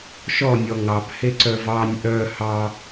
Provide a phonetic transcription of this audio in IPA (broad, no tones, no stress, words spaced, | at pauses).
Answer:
ʃɔ nʲɔŋɑb heǀœvɑnʲ ʔœ hɑ